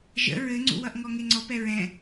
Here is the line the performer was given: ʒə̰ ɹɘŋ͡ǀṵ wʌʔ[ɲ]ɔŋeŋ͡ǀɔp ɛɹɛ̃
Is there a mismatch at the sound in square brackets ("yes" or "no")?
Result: yes